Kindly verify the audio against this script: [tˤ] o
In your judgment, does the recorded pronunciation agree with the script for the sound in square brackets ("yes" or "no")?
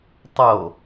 yes